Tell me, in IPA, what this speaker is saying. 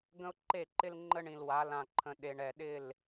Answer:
ɡə̃˦ʊ̯ǃe˦˨ǃɪ˦l ŋ͡ǃə˦ɳĩ˨lwa˨˦ lã˨ǃʰə̃˨ɗe˨ɳ ɛ˨ɗɪ˦˨l

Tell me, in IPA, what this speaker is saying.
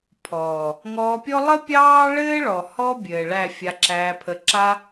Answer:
pʰɔː˨ | ŋɔː˧pʲɔ˦ lˠə˦pʲɑː˦ɭɘː˦ ɭɔ˨hɔ˦ bʲɘː˨ ɭæ˦˨fʲa˧ǁæː˧pʰə˧ ǁa˦

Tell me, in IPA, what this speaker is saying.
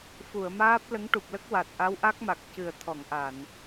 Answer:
fu˨˩˨ə̯maː˦˥p̚ lə˧˥ŋʈu˨˩p̚lə˦˥k̚ wa˨˩t̚ʔa˧˥wʔa˦˥k̚ma˨˩k̚ cɨ˨˩ə̯t̪ʰɔ˨˩˨ŋʔa˨˩˨n

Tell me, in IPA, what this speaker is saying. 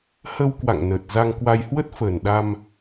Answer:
hə˧w kwa̰˧˨ŋnəː˨˩t̚ za˧ŋkwa˧j hwə˦˥t̚fəː˨˩nɗa˧m

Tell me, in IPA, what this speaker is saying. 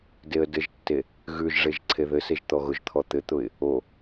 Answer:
deə̯dɘʒtːe | ɣʉʒʐeʒ ǀʰeðɘseʒ t̪ɔɣʊʒt̪ʰɔ t̪ɘt̪ʊɪ̯ | o

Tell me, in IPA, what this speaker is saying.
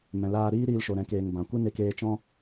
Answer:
mɛ̃˨laː˧ɾiː˦ɾiː˧l ʃo˨ɾɛ̃˨˦keː˨ŋ bã˨kʷɨ˦ ne˧keː˧ t͡ʃɔ̃˦

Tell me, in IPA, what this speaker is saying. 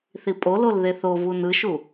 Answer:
θipʼolol ðeθovun ɯʃu

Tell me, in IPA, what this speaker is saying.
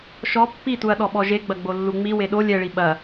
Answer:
ʃɔ pːituɐ̯ ɗɔɓɔʒe ɡ͡bɐɡ͡bolːuŋ͡mi weɗo lʲɛɭi ɓɐ

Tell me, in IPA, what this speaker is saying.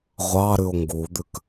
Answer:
ʁʷɑɾʉo̯ ŋɡud̪ʉk

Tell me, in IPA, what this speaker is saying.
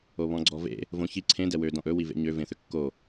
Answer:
oβɔ̃ɡ͡ǀɔvḛ | võçi ǀʰẽ dɛwø dɔ̃ʔɵ wivḛɲø vẽθʏkːo

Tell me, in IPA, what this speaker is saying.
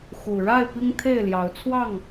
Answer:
xu˨˩ɻa˥˨ɪ̯ pi˦ŋt̪ʰe˥˨ɪ̯ljɑ˨˦ʊ̯t͡sʰwɑ˥˨ŋ

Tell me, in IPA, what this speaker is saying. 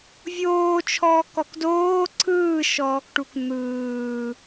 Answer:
vʲoːt͡ʃʰɔːkɔk doː ǀʰɯːʃɔːkʈuk n̪ɯː

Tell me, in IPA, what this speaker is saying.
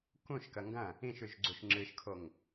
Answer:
kũʃ kɐŋɡɐ̃ | ĩʃʉʒɡ͡ǀuʃ ŋ͡ǁɨʃkʰoŋ

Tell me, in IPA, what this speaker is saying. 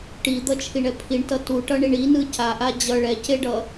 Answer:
ʈid̪ʌt͡ʃʰiɳɛ pʰiɳtʌ tuʈʌɳiɳ inɯ caʔa d͡ʑʌ ɭɛceɖʌ

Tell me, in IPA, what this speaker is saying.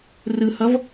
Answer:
rɯhʌv

